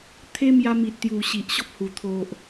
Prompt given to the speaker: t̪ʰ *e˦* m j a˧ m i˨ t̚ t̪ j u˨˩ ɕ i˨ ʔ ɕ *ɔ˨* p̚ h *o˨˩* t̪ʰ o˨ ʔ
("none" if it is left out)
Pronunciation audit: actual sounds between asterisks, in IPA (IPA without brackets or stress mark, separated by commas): e˦, ɔ˦, u˨˩